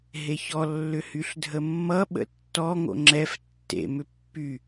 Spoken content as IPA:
ɦ e ç ɔ lː ʏ h y ɬ dʱ ə mː ʌ ɓ ə̰ tː ɔ ŋ o̰ ŋ͡ǁ ɛ f tː ḛ m ʏ pː y

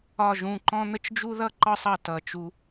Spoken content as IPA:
ɒ˦˨ ʒ ũ˦˨ ǃ ɔ̃˥ n̪ ə˥ t͡ʃ d͡ʒ u˥ ð ʌ˥ ǃ ɒ˥ sˤ ʌ˦˨ t ʌ˦˨ t͡ʃ u˥

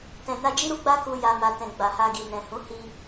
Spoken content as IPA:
t ɛ̃˨ n a˧ d͡ʒ i˦ ɾ u˧ ɡ͡b a˦ k u˧ j a˧ m a˨ t ɛ̃˨ ɡ͡b a˨ h a˧ ɡ i˨ n ɛ̃˨ h ũ˨˦ h i˧

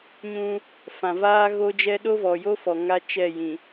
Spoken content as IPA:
ɲ ũ˦ | f ã˨ v aː˦ ɣ o˦ d͡ʒ ɛ˦ ɗ o˦ v ɔ˨ j o˦ f ɔ˨ ŋ a˦ t͡ʃ ɛ˦˨ j ĩ˨

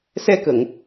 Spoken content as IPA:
s ɛ˧ k ə˨˩˨ ŋ

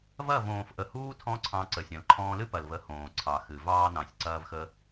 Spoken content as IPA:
v ɐ˦˨ v õː˨ f ʔ ə˨ h uː˦ tʰ ɔ̃˦ ǀʰ ɑ̃˧ ǀ ə˨ sʲ ɐ̃˨ l ǃʰ ɔ̃ː˧ l ɨ˦ p ɐ˨ l v ə˨˦ h õː˨ ǀʰ ɑ˨ x ɨ˨ v ɑː˧ n ɑ̃˨ sʲ ǀ ɐː˦ v x ə˦

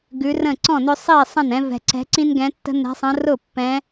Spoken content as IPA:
ɡ ʉ˨˦ r ə̃˥˩ ǀ ɔ̃˥˩ n ʏ˦ sˤ i˥˩ sˤ ə̃˥˩ n ɛ̃˨˦ v ɛ̤˨ ǀ ɛ̤˨˦ ǀ ĩ˦ n ɡ ɛ̃˨˦ tː ə̤˦ n ɛ̤˨˦ sˤ ə̃˨˦ r ʊ˥˩ pː ɛ̃˨˦

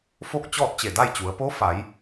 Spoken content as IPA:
f o˥˨ k̚ t͡ɕ ɔː˥˨ t̚ t͡ɕ e˧˩ d a˥˨ j t͡ɕ u˩˧ ə̯ p o˧˥ f a˩˧ j

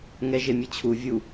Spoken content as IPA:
ŋ ɛ ʒ e mʲ ɯ t͡ɕʰ u vʲ u

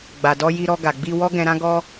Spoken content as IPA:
ɡ͡b a˨ d ɔ˧ j i˧ ɾ ɔ˧ ɡ a˨ ɡ͡b i˧ w ɔ˦ ɡ ɛ̃˧ ɾ ã˦ ɡ ɔ˦

